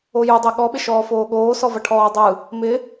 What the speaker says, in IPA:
o j u dˤ e ɠ ɔ ɓ ɪ ʃ ɔː f oː ɠ oː s ɔ v ɐ ʈʰ ɔː dˤ ɯ | m ɪ

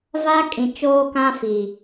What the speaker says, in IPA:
v a˦ kʼ ĩ˨ t͡ʃ oː˦ k ã˦ f i˨

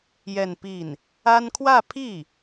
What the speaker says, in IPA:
j ɛ˥˧ n p i˥˩ n | a˥ n kʰ w ä˥˧ pʰ i˥˩

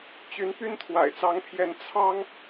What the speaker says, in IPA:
t͡ɕ y˧˥ n p y˥ n t̪ʰ w a̰˨˩ ɪ̯ t͡s ɑ˧˥ ŋ pʰ j ɛ˧˥ n t͡sʰ ɑ˥ ŋ

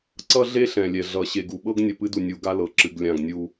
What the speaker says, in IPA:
ǀ ʌ˦ ɮ e˦ ɬ ɛ̃˨ lʲ ɛ˨ ɮ ʌ˨ ɕ e˨ ɡ u˨ ɓ ɤ˦ ɡ nʲ ʌ˨ p ɨ˦ d u˨ nʲ u˨ ɡ a˦ l ɤ˨ ǁ ɨ˨ ɡ lʲ ã˦˨ ɡ nʲ u˦

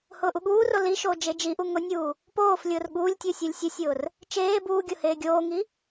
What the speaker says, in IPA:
h ʊː ʔ u ɠ uː r o l i ʃ oː d͡ʒ e d͡ʒ i ʔ u ŋ ʊ nʲ uː | p oː f lʲ ʊː r ɠ uː lʲ tʲ u sʲ u lʲ sʲ u sʲ ʊː r | t͡ʃ eː b uː ɡʲ ʊ h eː ɡʲ oː ŋ i

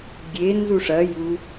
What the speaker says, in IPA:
ɡʲ e n z u ʂ ɐ j u

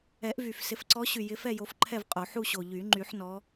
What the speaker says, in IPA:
ɛ˨˩˦ ʔ v y˨˩ f s ɪ˨˩˦ f ǀ ɔ˨˦ ɕ y˨˩ j ɪ˨˦ f ɛ˥˨ j o˨˦ f ǃʰ ɛ˥˨ v qʼ o˨˩˦ ħ u˥˨ ɕ o˨˩ ʎ y˨˩˦ ŋ͡ǃ y˨˩˦ ħ n ɔ˨˦

